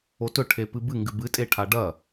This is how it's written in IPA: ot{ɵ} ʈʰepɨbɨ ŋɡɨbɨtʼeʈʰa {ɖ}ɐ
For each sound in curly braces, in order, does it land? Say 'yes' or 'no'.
yes, yes

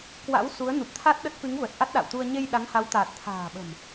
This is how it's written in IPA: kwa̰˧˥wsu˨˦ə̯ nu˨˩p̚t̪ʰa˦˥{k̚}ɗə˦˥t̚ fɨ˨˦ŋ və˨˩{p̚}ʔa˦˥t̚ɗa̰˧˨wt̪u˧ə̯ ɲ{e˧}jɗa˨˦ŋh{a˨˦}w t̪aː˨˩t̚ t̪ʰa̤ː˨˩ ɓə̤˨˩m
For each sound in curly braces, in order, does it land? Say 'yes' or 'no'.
no, no, yes, yes

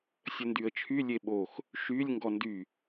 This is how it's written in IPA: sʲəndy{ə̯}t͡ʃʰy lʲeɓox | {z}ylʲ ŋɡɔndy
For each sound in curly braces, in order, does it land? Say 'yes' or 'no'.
yes, no

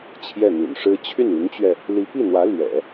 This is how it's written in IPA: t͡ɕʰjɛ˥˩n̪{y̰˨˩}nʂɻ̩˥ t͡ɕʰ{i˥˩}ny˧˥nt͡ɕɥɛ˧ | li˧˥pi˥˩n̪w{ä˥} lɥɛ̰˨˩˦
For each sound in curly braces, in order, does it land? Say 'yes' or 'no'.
yes, no, no

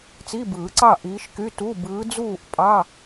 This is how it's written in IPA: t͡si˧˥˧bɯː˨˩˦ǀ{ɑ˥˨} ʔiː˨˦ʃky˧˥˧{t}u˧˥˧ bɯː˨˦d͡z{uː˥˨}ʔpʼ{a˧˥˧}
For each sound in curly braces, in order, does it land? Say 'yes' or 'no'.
yes, yes, yes, no

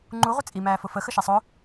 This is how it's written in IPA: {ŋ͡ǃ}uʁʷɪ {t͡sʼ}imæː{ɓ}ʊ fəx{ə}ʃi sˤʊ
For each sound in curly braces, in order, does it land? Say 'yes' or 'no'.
yes, yes, no, yes

